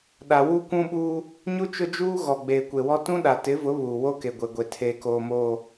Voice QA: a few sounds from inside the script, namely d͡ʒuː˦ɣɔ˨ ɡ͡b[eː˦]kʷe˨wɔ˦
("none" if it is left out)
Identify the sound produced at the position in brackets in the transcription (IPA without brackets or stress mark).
eː˨